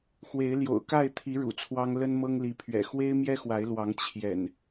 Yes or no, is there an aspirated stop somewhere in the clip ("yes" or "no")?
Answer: yes